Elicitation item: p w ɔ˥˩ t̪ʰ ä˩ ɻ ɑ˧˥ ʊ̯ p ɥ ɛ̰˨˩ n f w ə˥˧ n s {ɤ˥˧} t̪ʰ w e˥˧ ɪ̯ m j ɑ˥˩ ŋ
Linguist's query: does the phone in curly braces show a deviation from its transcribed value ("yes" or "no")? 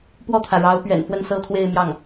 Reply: no